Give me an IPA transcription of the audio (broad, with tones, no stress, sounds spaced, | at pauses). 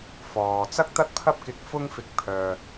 f ɔː˨ t͡s ɐ˥ k̚ t̪ ɐ˥ t̚ pʰ ɐ˥ p̚ k ɪ˧ k̚ f ʊ˥ ŋ f ɪ˧ k̚ pʰ œː˨